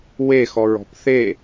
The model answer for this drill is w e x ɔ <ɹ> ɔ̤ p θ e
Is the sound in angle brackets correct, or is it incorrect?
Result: correct